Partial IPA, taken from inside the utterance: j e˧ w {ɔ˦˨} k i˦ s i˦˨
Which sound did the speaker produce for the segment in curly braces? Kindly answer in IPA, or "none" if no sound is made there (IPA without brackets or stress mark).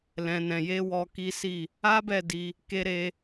ɔ˧